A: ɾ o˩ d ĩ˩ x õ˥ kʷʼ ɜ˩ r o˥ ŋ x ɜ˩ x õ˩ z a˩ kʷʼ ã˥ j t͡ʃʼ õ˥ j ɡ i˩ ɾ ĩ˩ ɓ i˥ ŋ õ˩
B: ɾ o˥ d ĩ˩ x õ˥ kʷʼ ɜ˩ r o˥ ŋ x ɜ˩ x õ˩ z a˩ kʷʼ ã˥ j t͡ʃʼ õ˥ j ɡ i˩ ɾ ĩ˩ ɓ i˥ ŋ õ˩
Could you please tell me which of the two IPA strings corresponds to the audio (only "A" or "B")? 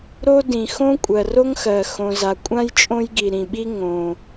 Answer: B